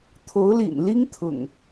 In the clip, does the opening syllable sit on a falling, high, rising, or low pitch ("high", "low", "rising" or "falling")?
rising